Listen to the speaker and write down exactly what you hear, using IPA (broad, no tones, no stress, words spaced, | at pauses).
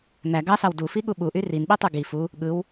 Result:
n̪æ ɡɑsɑw dufiɠu ɓuʔy rinɓitˤu ɡi fu | ɠɯw